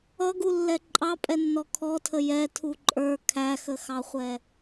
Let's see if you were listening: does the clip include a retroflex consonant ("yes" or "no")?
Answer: no